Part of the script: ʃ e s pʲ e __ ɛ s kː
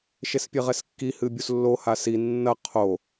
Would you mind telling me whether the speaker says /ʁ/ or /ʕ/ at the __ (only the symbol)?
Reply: ʁ